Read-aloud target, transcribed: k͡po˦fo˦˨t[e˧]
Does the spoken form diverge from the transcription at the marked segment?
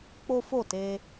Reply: no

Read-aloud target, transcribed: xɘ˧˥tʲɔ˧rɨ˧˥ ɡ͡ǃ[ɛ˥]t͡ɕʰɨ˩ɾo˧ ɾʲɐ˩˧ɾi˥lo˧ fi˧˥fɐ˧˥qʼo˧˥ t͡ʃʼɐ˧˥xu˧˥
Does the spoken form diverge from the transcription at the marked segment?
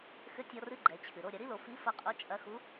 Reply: yes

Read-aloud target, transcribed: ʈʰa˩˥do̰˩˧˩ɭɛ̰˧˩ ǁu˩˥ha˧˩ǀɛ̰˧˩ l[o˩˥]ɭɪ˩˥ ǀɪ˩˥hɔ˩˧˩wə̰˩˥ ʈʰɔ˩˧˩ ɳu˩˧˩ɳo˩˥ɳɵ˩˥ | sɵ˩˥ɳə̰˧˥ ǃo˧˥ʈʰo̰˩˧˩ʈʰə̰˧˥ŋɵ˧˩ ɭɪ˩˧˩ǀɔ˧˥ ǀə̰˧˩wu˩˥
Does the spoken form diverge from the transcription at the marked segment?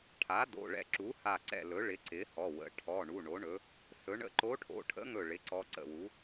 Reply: yes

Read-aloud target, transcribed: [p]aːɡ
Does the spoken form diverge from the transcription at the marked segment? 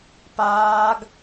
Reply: no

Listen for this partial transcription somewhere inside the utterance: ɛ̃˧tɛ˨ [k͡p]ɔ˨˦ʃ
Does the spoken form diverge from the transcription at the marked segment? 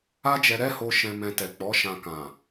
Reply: no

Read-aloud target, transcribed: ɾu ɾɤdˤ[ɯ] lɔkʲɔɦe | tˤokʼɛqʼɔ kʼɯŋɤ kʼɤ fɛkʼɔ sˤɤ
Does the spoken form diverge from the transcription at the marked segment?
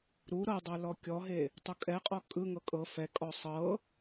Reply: yes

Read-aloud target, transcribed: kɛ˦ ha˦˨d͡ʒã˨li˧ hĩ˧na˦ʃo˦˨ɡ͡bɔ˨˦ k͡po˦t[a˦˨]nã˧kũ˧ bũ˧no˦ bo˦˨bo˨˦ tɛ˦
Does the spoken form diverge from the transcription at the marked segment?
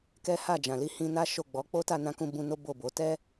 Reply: no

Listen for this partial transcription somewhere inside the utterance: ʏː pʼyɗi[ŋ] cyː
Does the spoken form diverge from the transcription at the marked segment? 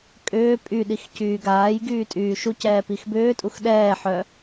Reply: yes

